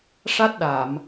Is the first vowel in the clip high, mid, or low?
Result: low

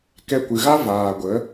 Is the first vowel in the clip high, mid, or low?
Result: mid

